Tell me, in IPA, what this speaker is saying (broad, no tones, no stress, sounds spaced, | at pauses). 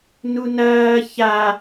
n u n ɐː ç a